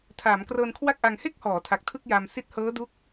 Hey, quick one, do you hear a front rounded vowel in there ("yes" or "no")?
no